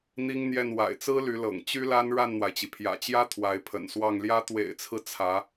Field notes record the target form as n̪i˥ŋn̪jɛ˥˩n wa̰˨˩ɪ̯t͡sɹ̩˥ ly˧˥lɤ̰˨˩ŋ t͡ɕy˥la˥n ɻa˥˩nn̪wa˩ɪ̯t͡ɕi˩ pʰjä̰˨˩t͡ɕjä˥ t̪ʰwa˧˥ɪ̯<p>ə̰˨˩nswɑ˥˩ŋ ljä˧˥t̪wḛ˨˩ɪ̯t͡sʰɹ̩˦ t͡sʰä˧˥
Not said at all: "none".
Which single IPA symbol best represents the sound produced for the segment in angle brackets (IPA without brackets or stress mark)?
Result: pʰ